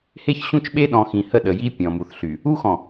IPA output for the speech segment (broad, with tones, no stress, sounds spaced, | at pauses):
h e˦ ç ɕ ũ˦ t͡ʃ ɓ e˦ ɗ ɔ̃˨ x ĩ˨ h ə˦˨ ɗ ə˨ j i˦ pʲ ɔ̃˨ m u˨ θ ɬ y˨ | u˦ x ɔ̃˨